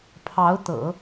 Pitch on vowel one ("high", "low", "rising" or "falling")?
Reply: rising